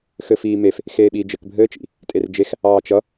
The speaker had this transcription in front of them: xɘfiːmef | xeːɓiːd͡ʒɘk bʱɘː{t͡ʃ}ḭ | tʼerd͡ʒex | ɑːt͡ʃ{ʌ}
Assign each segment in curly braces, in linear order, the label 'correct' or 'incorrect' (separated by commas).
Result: correct, correct